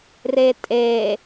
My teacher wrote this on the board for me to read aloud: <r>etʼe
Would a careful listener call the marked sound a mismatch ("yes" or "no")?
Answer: no